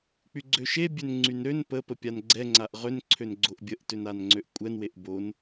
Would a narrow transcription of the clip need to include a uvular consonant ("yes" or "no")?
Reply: yes